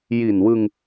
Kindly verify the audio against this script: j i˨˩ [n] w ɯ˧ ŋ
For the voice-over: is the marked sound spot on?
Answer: yes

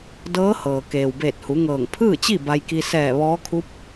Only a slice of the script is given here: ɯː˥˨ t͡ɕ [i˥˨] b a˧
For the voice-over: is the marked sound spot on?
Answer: yes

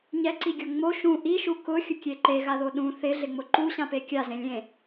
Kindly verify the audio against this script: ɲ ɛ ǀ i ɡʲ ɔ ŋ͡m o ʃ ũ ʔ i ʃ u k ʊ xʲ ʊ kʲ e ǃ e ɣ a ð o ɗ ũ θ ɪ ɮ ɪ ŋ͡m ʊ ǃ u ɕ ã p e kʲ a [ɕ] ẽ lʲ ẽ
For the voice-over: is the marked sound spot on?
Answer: no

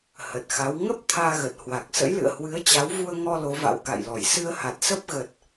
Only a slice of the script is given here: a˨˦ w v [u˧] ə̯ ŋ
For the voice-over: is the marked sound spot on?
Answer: yes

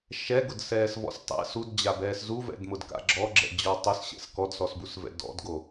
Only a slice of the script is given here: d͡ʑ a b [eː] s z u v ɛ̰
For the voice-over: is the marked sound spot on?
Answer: no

